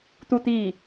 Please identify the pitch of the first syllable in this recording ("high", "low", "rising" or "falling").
falling